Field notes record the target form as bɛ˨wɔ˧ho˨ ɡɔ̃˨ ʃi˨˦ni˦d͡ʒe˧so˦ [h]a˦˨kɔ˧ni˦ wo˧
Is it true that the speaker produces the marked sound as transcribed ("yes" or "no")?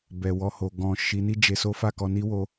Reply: no